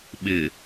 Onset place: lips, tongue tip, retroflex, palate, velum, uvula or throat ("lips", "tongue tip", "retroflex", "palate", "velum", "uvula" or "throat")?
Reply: lips